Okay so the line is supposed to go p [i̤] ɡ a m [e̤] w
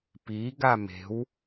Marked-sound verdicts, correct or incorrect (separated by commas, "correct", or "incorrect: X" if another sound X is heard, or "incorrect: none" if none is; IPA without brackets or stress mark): incorrect: i, correct